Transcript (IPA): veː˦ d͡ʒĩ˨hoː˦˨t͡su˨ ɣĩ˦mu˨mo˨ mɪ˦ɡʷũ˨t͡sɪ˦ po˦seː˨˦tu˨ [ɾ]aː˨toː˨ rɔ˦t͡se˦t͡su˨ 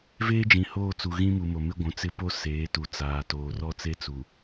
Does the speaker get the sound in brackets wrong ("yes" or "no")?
yes